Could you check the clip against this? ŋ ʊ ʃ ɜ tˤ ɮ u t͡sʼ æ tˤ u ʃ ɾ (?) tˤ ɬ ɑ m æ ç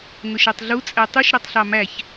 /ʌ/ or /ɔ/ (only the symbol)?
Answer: ʌ